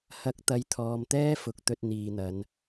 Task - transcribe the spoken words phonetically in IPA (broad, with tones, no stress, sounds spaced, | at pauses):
h ɐ˨˥ k̚ t̪ ɐ˨˧ j t̪ʰ ɔː˨ m t̪ ɛː˥ f ʊ˨ k̚ t̪ ɵ˧ t̚ n̪ iː˨ n̪ ɐ˨˧ n